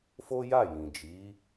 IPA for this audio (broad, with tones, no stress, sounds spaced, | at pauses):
f o˦ j a˦˨ j ĩ˨ d͡ʒ i˨˦